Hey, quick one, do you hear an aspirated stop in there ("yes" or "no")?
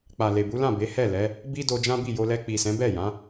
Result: no